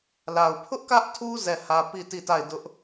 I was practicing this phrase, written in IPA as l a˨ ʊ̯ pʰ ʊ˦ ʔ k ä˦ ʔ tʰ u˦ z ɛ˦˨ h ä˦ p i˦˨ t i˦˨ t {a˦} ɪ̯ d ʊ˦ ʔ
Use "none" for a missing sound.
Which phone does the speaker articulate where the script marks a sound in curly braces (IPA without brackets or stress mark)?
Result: a˦˨